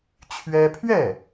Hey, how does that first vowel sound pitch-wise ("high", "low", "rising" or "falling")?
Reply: high